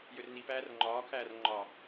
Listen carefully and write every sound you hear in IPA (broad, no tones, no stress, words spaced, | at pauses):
jørnipæːr ŋ͡ǃɒːkʰæːrŋ͡ǃɒː